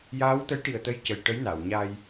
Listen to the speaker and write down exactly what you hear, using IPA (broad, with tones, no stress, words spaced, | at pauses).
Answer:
jaː˧˥wt̪ə˧˥jʈi˨˩ə̯t̪ə˧j cə˨˩j ʈə˧˥jna˨˩˨wɲa˧j